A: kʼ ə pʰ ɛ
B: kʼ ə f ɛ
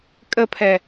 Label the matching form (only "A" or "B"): A